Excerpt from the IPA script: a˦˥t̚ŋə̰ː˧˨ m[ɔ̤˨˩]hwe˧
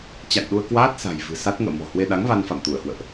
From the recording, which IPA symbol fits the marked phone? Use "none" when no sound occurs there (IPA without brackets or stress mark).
ɔ̤˨˩